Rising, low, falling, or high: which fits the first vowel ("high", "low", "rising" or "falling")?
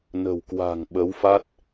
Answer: low